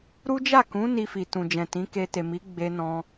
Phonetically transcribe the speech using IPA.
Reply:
ɾ u˦ d͡ʒ a˦˨ k ũ˨˦ n i˧ f i˨ t ũ˨ d͡ʒ ɛ̃˨ t ĩ˨˦ k e˧ t e˨ m i˨˦ ɡ͡b e˧ n ɔ̃˧

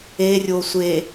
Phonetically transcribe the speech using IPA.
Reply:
e rʲ o sʷ e

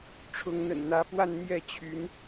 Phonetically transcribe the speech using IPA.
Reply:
ʈ͡ʂʰ ʊ˧˥ ŋ n̪ ə̰˨˩ n n̪ ä˧˥ p w a˥˧ n n̪ j ɛ˥˩ t͡ɕʰ y˧˥ n

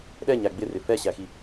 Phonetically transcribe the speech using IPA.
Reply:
ɗ ɛ ɲ æ ɡ͡b ɪ r ɪ f ɛ ɕ æ x i

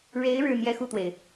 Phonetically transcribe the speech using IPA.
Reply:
ɻ e˧˥ ɪ̯ ɻ ɻ̩˥˧ n̪ j ɛ˥˧ x u˥˩ t̪ w e˩ ɪ̯

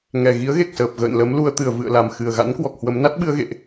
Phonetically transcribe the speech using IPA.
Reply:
ŋ ɛ˨˩ ɣ i˨˦ ə̯ ɣ e˨˩ k̚ s əː˨˩ p̚ ɣ ə̰ː˧˨ n l ə˨˦ m l u˨˩ ə̯ t̪ ɨ˧˩ ə̯ v ɨ̰˧˨ ə̯ l a˨˩ m x ɨ˨˩ ə̯ ɣ a̰˧˥ n k w ɔ˨˩ k̚ h w ə˨˦ m n a˦˥ t̚ ɓ ɨ˧ ə̯ ɣ ḛ˧˨ ʔ

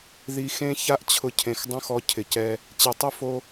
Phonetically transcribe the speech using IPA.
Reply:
ð i˧ x ẽ˦ ç a˦ ʔ t͡ɕʰ ʊ˧ cʰ ẽ˨ x dˤ õ˦ x ɔ˧ cʰ ɪ˨ c ɛ˧ | t͡ɕ e˨ tˤ ʊ˦ f o˧

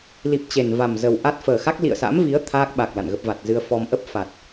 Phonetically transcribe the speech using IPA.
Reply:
l i˨˩ p̚ t͡ɕ e˨˩ n v a˨˩ m z ə˨˩ w ʔ a˦˥ t̚ f əː˨˩ x a˦˥ k̚ l ḭ˧˨ ə̯ s a̰˧˥ m v i˨˦ ə̯ t̪ʰ aː˦˥ k̚ ɓ a˨˩ k̚ l a̰˧˨ n ɣ ə˦˥ p̚ v a˨˩ t̚ z ɨ˧ ə̯ f ɔ˧ m ʔ ə˦˥ p̚ f a˨˩ t̚

